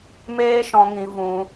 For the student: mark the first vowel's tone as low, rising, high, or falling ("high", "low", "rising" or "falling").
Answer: high